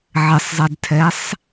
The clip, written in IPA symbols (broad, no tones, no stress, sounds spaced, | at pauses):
ʕ ɪ sˤ zˤ ɛ d tʰ ɛ sˤ